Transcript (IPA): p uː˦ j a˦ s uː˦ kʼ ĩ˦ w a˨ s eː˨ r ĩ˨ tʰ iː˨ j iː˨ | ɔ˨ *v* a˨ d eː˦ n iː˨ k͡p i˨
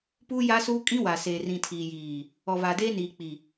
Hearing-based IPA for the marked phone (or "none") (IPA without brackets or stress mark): v